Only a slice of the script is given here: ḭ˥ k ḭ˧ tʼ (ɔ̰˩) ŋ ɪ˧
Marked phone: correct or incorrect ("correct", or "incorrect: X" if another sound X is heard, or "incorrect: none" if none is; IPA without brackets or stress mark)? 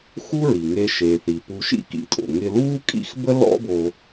incorrect: o̰˩